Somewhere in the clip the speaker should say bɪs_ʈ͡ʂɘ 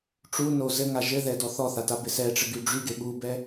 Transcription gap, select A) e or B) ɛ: B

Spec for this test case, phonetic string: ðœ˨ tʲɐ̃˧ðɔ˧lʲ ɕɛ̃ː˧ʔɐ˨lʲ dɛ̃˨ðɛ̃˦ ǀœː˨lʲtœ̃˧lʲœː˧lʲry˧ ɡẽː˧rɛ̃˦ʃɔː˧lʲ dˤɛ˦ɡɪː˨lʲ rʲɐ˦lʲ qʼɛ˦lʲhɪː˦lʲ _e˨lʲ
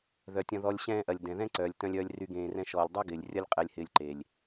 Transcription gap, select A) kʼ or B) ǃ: B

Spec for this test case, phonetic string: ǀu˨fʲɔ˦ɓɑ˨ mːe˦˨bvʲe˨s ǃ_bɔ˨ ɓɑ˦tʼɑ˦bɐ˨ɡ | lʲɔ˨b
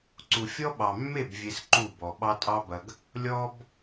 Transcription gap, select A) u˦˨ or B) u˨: A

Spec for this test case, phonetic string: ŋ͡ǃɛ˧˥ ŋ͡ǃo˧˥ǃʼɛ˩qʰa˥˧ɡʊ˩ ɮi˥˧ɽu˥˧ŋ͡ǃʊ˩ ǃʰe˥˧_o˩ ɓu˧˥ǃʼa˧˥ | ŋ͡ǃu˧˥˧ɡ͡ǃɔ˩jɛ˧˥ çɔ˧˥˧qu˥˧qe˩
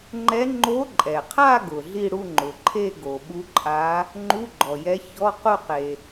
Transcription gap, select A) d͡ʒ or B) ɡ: B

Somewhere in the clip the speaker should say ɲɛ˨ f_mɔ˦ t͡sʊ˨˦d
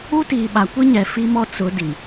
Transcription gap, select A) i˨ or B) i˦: B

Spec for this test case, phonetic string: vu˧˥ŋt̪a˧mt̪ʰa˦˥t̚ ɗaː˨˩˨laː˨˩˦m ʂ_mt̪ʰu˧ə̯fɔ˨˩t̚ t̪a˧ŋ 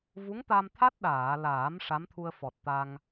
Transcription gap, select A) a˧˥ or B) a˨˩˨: A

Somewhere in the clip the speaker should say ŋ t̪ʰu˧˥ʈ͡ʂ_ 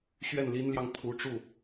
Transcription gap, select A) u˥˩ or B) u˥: A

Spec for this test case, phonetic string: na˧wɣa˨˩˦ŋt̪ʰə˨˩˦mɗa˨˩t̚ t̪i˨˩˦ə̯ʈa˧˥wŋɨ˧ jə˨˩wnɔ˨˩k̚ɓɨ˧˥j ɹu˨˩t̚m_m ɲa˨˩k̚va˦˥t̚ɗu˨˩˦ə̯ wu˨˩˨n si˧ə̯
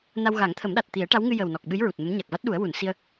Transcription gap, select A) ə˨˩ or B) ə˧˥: B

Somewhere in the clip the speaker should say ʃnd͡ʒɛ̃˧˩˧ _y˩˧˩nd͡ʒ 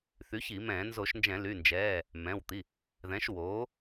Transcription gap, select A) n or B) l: B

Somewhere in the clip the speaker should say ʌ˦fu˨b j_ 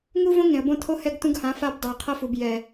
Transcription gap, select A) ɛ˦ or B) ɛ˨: B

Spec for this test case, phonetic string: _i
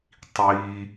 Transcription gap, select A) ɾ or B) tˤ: B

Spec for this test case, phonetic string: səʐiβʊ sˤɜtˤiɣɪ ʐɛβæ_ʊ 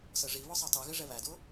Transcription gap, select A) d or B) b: A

